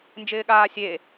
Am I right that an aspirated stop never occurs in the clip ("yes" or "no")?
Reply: yes